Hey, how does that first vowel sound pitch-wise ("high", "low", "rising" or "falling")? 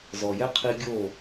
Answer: low